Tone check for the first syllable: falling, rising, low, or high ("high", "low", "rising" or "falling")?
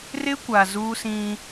high